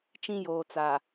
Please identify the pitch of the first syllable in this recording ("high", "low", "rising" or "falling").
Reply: high